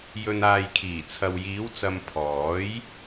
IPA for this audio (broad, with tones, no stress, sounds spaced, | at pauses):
j ɵ˨ n aː˨ j kʰ iː˨˩ t͡sʰ ɐ˨ w j iː˨˥ w t͡s ɐ˧ m pʰ ɔː˨˥ j